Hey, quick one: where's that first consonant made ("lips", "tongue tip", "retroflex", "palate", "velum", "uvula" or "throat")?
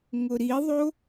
velum